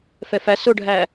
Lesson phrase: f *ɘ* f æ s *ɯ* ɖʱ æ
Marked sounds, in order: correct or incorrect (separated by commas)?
incorrect, incorrect